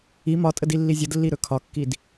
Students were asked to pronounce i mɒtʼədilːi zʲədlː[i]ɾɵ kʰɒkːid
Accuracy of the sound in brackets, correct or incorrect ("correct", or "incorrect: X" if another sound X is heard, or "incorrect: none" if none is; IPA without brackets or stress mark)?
correct